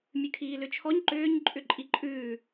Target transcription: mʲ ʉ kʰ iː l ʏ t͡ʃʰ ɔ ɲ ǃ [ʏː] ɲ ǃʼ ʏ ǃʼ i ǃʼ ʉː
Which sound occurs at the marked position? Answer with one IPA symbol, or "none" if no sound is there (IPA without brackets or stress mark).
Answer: ʏː